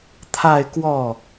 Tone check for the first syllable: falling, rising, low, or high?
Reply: falling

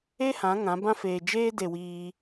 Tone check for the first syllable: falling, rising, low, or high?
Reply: high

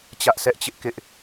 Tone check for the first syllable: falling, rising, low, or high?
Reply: high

